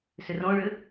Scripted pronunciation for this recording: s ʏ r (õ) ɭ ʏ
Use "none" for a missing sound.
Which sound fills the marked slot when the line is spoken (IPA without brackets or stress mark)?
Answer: õ